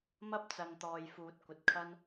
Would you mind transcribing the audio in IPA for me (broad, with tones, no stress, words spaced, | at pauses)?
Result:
mɐ˥p̚t͡sɐ˨ŋt̪ɔː˨j fuː˨˥t̚kʷɐ˨t̚kʰɐ˥n